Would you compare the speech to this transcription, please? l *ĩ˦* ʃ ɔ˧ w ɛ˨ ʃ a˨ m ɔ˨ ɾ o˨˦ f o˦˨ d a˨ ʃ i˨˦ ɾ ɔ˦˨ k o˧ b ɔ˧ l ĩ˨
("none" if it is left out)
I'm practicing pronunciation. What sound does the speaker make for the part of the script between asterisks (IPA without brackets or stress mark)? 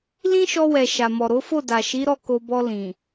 ĩ˦